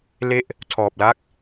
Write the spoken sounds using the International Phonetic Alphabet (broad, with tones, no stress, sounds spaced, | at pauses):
l e˥˩ ʔ | tʰ ɔː˨˩ p̚ l a˥˩ k̚